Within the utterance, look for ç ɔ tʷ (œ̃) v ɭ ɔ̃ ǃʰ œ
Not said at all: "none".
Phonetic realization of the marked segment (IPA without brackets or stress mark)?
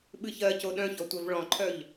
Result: œ